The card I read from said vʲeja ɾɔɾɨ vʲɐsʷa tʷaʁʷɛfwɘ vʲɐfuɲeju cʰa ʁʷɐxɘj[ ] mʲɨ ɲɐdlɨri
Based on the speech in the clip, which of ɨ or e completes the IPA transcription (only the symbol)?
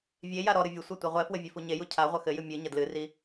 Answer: ɨ